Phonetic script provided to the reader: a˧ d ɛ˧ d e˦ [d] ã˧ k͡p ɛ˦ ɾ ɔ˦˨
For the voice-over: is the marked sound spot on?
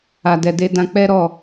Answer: yes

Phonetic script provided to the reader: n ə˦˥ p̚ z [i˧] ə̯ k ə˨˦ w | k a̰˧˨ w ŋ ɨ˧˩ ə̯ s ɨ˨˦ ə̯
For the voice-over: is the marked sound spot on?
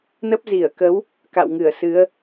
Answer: no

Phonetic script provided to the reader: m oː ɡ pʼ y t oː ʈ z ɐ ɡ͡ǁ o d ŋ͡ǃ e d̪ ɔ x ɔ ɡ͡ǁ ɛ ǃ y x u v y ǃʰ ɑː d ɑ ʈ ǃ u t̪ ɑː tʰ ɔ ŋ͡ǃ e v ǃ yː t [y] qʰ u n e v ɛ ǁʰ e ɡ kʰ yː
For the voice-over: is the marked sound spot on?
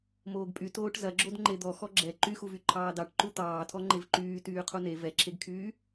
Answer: no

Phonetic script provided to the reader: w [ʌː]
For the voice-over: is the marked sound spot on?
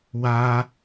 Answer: no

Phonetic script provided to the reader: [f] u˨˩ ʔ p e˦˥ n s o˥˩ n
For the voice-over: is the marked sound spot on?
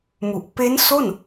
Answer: no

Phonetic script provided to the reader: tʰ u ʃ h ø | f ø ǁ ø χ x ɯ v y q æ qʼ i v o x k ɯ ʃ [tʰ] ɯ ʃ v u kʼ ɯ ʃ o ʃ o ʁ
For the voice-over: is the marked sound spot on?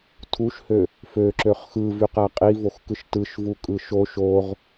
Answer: no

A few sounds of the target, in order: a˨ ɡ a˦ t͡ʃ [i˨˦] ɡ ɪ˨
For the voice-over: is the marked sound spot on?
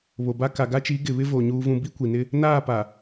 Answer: yes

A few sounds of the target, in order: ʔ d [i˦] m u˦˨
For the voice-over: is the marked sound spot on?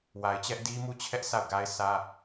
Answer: yes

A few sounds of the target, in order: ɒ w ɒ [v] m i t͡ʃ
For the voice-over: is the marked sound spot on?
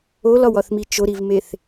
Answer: no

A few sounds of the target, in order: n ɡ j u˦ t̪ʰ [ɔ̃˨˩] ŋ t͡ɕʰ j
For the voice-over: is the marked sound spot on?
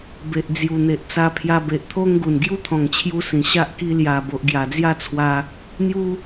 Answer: yes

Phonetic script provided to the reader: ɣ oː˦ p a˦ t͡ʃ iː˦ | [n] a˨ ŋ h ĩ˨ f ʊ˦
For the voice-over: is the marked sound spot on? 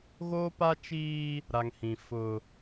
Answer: no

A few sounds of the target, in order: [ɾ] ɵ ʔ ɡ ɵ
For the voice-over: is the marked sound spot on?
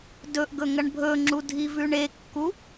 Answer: no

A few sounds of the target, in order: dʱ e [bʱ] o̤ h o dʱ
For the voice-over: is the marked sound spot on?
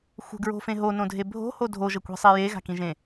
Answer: yes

